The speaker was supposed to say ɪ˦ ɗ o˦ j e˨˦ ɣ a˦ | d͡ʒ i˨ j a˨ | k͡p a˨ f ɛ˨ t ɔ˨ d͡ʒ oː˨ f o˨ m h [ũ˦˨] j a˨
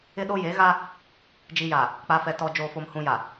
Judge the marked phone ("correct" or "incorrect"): incorrect